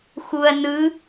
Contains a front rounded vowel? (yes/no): no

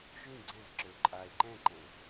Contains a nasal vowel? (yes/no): yes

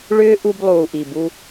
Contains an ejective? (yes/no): no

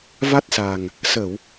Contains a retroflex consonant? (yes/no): no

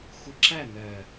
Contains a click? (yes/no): yes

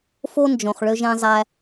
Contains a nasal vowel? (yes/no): yes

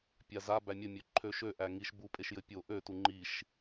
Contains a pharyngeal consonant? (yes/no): no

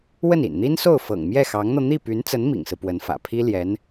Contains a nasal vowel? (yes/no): no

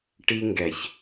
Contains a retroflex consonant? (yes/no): yes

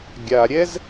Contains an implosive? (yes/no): no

